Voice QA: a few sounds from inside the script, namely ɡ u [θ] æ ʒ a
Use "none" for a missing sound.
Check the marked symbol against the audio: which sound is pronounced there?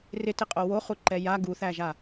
θ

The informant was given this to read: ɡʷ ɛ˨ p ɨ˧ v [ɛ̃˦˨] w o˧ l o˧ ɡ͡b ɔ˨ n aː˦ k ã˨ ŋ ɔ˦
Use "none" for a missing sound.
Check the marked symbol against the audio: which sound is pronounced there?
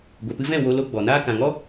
ɛ̃˦˨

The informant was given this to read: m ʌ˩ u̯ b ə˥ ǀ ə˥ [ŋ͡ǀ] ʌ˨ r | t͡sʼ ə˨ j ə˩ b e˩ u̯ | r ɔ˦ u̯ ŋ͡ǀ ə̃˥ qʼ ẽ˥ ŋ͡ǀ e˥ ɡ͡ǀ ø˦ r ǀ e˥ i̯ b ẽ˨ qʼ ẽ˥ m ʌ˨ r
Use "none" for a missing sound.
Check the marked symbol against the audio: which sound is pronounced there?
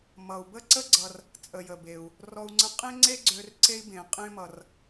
ɡ͡ǀ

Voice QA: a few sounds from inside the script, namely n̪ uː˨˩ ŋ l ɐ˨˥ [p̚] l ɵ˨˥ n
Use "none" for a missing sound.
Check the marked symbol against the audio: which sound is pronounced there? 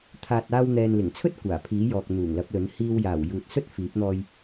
p̚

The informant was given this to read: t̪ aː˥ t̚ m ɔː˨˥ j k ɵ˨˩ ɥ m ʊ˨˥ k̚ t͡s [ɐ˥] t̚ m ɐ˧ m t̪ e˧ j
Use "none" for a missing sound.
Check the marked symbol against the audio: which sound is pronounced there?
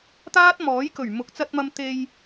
ɐ˧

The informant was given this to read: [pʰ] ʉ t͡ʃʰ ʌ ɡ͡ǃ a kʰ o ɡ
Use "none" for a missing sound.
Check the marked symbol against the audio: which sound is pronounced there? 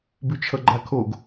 b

